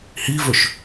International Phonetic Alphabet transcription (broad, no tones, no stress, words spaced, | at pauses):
hivɵʃ